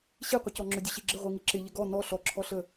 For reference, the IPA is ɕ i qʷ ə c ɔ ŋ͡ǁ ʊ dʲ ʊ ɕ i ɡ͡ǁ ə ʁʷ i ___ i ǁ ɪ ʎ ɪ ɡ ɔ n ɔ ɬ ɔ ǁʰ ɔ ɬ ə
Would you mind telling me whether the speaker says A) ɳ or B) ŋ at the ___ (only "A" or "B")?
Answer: B